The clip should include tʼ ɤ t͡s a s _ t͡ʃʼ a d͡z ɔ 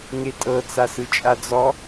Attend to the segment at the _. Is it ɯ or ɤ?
ɯ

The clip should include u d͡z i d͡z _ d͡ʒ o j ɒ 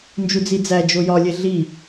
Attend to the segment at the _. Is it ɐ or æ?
æ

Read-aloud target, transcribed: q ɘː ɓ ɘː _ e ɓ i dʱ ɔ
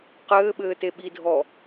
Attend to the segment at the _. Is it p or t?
t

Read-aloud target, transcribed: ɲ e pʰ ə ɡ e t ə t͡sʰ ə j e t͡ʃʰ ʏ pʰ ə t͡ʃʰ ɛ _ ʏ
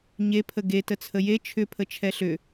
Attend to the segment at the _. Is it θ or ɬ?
ɬ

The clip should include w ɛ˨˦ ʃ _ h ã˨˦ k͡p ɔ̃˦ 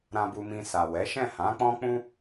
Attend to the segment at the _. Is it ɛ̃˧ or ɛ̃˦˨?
ɛ̃˦˨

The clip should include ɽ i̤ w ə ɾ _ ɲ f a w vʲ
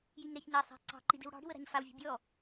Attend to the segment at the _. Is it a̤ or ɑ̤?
a̤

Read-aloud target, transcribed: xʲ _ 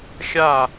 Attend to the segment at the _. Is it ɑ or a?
a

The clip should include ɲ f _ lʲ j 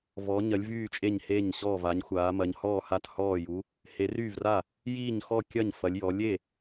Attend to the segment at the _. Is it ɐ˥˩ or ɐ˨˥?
ɐ˨˥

